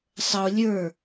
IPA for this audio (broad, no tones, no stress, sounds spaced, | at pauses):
sˤ ə o̯ lʲ ə˞